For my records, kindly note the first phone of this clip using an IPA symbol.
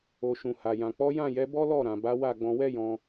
o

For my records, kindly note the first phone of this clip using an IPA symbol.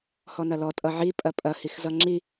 h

